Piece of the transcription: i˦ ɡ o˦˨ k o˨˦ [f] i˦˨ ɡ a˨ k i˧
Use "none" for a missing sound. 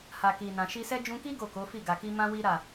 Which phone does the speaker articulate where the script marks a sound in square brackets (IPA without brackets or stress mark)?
f